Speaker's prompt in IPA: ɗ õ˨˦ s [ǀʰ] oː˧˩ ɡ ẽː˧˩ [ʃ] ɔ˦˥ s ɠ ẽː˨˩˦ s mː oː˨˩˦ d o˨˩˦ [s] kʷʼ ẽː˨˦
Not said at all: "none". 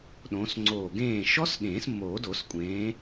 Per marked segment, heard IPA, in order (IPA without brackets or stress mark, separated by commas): ŋ͡ǀ, ʃ, s